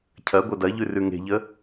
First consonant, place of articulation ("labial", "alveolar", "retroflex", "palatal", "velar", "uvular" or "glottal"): palatal